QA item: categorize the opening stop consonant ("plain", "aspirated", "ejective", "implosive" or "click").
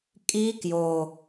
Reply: ejective